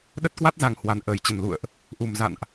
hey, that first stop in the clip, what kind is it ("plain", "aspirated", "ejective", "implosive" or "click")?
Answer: implosive